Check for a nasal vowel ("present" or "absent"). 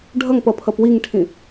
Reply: present